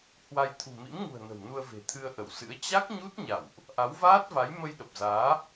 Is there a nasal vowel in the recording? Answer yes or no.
no